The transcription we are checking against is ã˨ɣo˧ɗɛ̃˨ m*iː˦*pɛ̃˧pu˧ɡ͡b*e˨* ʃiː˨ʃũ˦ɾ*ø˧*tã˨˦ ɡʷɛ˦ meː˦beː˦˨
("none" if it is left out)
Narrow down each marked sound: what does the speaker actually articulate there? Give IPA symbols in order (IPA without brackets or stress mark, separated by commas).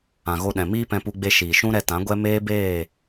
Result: iː˦, e˧, ɛ˧